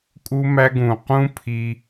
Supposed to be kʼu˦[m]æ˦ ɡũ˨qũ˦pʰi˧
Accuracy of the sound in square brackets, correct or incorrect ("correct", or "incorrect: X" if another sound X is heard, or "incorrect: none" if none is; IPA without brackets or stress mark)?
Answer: correct